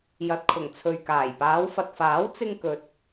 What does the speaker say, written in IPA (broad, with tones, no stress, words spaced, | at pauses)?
jɐ˨t̚kʰʊ˨˩ŋt͡sʰɵ˨ɥkaː˨˩j paː˨˧wfɐ˨t̚faː˨˥w t͡sɪ˥ŋkɵ˧t̚